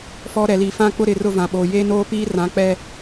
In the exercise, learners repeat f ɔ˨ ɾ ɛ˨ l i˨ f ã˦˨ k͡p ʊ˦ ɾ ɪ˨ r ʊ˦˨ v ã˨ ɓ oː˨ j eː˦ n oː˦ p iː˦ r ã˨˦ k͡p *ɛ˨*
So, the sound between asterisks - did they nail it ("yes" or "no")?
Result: no